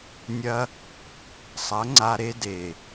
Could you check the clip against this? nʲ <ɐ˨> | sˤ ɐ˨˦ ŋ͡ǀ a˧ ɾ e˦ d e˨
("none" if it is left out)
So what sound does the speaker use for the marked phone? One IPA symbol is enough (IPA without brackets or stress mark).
ɐ˧